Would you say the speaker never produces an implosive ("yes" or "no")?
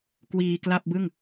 yes